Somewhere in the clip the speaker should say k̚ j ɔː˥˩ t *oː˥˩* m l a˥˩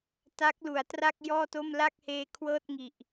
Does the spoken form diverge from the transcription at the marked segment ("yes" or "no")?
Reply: yes